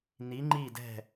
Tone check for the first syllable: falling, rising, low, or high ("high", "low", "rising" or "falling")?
rising